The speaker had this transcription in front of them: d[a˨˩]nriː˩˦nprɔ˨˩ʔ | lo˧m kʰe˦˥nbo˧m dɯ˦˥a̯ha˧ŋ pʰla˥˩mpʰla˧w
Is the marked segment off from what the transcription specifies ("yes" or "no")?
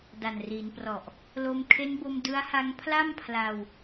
no